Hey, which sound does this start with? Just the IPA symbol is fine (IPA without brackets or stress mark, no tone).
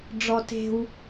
ɖ͡ʐ